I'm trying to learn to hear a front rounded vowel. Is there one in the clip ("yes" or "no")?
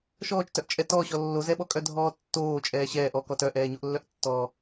yes